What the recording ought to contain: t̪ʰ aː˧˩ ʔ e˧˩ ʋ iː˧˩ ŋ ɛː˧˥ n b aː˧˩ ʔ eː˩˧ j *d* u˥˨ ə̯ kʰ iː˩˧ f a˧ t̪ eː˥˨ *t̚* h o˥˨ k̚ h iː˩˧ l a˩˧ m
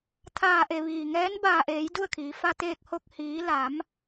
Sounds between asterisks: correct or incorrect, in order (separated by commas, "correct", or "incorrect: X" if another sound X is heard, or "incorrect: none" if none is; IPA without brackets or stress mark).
correct, incorrect: k̚